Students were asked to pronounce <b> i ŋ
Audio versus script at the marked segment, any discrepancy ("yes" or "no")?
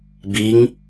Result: no